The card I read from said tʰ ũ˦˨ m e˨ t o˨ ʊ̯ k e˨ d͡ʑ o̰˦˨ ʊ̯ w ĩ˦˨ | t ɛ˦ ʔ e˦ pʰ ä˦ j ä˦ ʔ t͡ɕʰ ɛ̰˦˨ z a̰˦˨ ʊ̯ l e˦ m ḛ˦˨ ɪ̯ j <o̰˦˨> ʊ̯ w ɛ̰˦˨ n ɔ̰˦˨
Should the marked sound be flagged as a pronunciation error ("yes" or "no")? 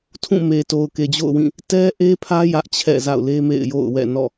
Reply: no